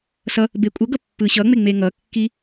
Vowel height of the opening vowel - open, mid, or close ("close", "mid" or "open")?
mid